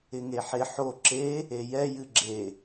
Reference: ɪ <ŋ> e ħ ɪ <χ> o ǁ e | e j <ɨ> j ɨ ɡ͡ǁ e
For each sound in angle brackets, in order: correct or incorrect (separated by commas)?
correct, incorrect, incorrect